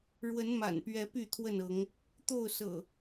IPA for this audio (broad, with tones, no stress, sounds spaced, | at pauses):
ɻ w ə˨˦ n m a̰˨˩ n p ɥ ɛ˨˦ p y˥˨ t̪ʰ w ə˥˨ n ɤ˨˦ ŋ | t̪ o˥˨ ʊ̯ s ɤ̰˨˩